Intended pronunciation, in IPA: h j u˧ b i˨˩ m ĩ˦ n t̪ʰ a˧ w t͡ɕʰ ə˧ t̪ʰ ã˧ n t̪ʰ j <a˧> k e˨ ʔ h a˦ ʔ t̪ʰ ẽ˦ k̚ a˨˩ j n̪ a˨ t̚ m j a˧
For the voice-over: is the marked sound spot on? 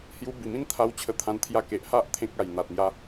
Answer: yes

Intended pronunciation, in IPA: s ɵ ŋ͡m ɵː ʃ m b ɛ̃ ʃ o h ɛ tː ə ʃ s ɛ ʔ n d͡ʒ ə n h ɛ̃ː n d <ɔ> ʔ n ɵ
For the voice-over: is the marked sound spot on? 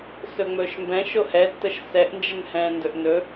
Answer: no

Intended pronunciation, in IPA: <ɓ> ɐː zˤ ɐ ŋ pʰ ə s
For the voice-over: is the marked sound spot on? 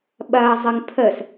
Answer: yes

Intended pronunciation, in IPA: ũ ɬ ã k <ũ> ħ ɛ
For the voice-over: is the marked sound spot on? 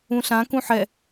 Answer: yes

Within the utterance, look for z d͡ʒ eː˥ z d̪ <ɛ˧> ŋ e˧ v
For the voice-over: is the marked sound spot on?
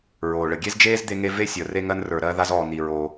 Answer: no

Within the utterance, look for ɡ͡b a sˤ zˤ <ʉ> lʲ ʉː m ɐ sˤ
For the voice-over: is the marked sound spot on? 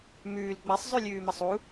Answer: yes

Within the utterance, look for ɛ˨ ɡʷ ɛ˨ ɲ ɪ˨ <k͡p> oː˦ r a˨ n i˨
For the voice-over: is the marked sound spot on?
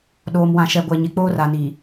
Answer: yes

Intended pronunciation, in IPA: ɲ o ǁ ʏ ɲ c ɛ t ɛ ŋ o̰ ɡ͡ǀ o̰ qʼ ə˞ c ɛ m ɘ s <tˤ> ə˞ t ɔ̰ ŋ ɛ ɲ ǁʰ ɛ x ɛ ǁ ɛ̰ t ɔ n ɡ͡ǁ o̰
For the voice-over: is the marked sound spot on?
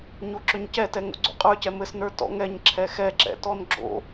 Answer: no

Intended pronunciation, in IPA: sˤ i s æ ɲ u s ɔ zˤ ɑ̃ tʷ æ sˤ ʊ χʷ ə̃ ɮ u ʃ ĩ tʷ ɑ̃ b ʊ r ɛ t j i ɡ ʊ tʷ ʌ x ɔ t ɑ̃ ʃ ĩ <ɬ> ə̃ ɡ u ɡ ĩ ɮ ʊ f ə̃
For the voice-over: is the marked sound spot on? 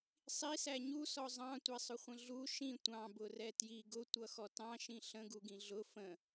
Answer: yes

